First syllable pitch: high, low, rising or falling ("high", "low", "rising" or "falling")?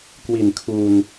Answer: low